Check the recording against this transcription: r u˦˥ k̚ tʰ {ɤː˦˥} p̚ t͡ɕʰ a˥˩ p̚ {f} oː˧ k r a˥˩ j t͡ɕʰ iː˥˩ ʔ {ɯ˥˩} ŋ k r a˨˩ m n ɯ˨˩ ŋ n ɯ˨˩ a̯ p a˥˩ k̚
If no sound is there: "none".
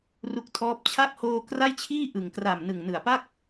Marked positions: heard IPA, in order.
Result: ɔː˦˥, h, ɯ˨˩

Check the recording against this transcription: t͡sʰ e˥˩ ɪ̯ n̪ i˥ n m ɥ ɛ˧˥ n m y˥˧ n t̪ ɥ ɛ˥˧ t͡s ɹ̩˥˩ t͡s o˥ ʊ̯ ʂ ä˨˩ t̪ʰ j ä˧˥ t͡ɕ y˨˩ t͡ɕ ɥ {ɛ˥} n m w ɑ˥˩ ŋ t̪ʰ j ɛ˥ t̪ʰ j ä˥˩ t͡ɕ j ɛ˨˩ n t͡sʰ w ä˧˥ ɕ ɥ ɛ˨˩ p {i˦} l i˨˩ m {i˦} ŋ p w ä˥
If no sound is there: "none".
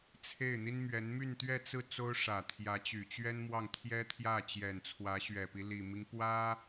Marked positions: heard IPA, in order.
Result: ɛ˥, i˦, i˦

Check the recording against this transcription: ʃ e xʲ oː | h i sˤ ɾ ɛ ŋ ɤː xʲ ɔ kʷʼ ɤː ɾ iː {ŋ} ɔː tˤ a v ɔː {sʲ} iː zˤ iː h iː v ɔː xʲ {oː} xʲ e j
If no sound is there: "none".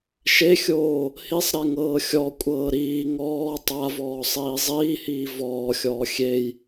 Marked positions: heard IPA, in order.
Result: ŋ, sˤ, ɔː

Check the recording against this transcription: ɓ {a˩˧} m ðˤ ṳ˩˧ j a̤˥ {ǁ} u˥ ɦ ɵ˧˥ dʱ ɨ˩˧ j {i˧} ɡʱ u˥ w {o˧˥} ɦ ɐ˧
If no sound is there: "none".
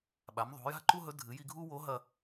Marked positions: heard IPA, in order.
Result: a˩˧, ǃ, i˧, o˧˥

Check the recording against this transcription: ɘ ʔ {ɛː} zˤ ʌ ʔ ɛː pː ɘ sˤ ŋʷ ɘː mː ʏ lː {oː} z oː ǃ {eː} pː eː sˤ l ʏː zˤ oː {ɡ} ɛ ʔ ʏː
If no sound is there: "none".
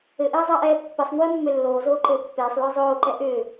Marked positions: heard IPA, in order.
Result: ɘː, oː, ɘː, ǃ

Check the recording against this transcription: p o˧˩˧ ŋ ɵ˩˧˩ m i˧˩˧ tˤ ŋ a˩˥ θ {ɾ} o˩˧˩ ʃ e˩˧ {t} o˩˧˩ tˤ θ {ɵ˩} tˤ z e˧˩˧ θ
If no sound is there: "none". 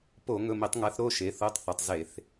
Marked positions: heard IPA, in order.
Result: ɾ, θ, ɵ˩

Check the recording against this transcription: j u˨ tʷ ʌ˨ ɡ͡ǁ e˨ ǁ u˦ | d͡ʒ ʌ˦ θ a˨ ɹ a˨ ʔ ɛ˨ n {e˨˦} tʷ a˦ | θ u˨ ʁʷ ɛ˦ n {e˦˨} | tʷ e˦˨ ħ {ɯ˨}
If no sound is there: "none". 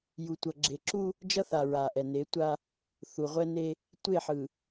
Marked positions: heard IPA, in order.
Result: e˨˦, e˦, ɯ˨

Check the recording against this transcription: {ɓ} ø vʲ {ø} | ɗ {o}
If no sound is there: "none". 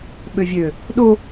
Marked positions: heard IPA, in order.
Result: ɓ, ø, o

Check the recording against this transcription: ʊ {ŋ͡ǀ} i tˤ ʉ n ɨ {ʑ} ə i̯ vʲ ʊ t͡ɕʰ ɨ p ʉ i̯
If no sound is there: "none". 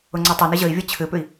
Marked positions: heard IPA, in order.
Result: ŋ͡ǀ, ʑ

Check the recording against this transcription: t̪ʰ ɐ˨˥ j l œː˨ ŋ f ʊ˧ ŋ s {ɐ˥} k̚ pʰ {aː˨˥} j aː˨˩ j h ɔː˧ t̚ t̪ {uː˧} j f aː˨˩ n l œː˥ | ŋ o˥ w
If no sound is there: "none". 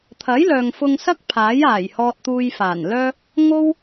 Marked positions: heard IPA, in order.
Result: ɐ˥, aː˨˥, uː˧

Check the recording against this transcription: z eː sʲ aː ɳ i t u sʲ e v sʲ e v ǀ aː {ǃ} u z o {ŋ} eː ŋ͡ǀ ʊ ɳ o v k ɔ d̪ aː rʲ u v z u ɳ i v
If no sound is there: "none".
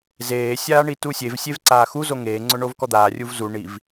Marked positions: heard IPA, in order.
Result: x, ŋ

